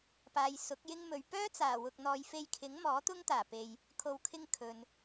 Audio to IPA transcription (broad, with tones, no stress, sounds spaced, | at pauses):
p aː˨ j s ʊ˨˥ k̚ j ɪ˥ ŋ m ɵ˨˧ ɥ p œː˥ t͡s aː˨˩ w ʊ˨ k̚ n̪ ɔː˨ j f e˧ j kʰ ɪ˨˥ ŋ m ɔː˨˥ t̪ ʊ˥ ŋ t̪ aː˨˩ p e˨ j | kʰ o˧ w kʰ ɪ˥ ŋ kʰ ɵ˨ n